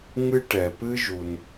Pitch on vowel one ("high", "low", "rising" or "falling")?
high